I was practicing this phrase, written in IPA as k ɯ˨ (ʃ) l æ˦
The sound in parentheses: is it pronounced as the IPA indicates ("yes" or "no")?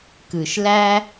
yes